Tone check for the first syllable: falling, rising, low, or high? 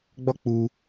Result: high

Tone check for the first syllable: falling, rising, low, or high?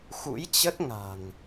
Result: rising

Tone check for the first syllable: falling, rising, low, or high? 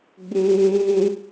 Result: high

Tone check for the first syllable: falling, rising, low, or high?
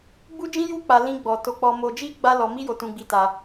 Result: high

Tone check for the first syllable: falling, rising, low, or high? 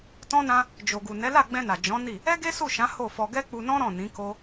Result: high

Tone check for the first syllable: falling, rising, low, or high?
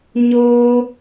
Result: high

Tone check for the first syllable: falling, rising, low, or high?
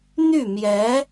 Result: falling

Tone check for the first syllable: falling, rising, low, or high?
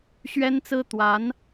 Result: high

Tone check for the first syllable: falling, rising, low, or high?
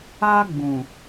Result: high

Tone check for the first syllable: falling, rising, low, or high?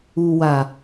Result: low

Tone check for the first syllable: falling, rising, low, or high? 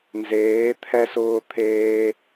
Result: rising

